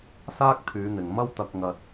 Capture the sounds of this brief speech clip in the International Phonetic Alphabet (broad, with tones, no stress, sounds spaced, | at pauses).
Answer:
s aː˥ k̚ t̪ʰ yː˨˧ n̪ ɪ˨ ŋ m ɐ˥ w t̪ ɐ˧ k̚ ŋ ɐ˧ t̚